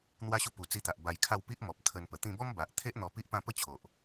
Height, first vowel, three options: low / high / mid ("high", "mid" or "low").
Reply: low